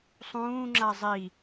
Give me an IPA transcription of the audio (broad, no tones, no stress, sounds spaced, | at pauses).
sˤ ũː ŋ͡ǁ a zˤ i